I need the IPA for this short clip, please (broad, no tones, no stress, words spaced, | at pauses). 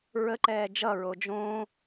ɹəǃɛː d͡ʒʌɹo d͡ʒõː